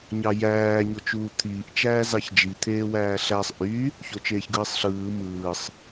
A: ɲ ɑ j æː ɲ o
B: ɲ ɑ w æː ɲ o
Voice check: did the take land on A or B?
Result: A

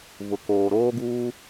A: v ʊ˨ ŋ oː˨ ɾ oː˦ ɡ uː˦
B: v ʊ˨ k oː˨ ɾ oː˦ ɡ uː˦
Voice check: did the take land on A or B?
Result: B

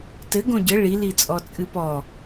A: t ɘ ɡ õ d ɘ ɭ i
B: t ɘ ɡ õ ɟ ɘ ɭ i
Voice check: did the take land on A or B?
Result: B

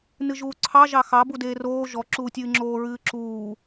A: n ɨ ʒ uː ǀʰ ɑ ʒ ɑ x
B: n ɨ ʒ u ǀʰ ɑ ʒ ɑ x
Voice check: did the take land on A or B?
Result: A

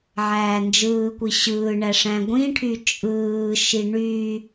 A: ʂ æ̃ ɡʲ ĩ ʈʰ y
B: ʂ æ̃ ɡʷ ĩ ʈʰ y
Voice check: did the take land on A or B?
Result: B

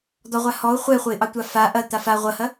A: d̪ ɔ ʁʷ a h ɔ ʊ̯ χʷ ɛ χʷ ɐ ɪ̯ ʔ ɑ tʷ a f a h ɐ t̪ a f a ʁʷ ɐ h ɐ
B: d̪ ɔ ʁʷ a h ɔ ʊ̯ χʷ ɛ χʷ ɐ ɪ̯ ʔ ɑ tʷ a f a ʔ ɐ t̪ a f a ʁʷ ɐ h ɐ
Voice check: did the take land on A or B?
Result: B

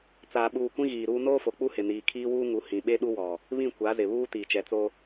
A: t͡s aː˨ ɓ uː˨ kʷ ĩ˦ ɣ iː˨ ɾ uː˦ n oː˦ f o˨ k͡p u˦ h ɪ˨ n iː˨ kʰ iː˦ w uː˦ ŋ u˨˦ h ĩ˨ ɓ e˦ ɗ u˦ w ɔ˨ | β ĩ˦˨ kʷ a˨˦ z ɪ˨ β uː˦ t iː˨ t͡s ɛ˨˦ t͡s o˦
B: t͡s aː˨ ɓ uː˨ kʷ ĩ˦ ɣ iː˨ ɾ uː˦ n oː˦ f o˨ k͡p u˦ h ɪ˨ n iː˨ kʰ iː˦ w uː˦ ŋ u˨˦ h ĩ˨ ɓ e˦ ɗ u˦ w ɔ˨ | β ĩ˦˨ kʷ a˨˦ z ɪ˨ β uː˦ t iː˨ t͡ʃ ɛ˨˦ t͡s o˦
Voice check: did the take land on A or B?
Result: B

